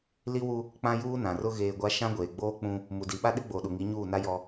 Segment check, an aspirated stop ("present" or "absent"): absent